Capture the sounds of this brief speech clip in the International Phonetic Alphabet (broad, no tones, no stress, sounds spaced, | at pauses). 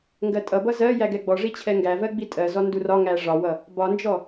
ŋ ɡ ɜ tʼ ʌ b ʌ z ɜ j æ ɡ ɛ ɡ͡b ɔ ʐ i t͡ɕʰ ɛ ŋ ɡ æ v ɜ ɡ͡b i tʼ ɜ z ɔ n d u r ɒ ŋ æ ʐ ɒ w ʌ | b ɒ n d͡ʒ ɔ